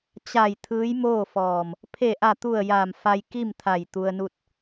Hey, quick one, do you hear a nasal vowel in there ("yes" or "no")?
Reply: no